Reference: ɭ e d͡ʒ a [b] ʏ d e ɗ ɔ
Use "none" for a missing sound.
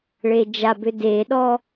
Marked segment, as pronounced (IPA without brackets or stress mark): b